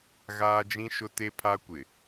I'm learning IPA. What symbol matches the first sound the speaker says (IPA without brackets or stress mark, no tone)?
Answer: ɣ